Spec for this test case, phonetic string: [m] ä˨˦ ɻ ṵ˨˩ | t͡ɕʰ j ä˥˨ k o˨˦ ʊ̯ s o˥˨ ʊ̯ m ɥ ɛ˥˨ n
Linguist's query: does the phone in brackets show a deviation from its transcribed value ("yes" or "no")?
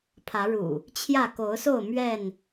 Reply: yes